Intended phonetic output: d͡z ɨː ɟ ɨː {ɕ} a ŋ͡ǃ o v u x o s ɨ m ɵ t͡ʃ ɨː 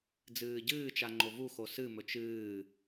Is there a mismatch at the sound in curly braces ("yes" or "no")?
yes